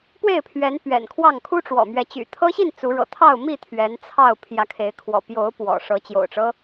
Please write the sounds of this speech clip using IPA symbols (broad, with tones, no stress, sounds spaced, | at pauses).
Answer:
p w e˥˨ ɪ̯ pʰ ɥ ɛ˨˦ n p ɥ ɛ̰˨˩ n kʰ w ɑ˥˨ ŋ kʰ u˦ ʈ͡ʂ w ɔ̰˨˩ m ɥ ɛ˨˦ t͡ɕ y̰˨˩ t̪ʰ ɤ˦ ɕ i˥˨ n t͡s u˨˦ ɻ ɤ̰˨˩ t̪ʰ ɑ˥˨ ʊ̯ m i˥˨ t̪ʰ ɥ ɛ˨˦ n t͡sʰ ɑ˥˨ ʊ̯ pʰ j ä˨˦ kʰ e˨˦ ɪ̯ kʰ w ɔ̰˨˩ p j o˨˦ ʊ̯ p w ɔ̰˨˩ ʂ ɤ˨˦ t͡ɕ j o̰˨˩ ʊ̯ ʈ͡ʂ ɤ˦